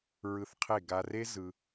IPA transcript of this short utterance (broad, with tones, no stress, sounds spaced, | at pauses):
ɹ ɯ˧ θ qʰ e˦˨ ɡ a˧ r e˦ z ɯ˧